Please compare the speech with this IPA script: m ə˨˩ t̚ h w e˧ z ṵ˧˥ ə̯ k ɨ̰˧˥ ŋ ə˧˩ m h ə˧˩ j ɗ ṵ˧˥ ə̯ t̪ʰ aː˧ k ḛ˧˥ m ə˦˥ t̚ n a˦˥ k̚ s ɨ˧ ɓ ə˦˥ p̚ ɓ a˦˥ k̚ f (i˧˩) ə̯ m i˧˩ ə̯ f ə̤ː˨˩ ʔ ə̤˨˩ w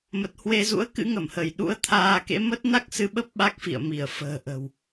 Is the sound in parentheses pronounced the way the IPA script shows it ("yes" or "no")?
no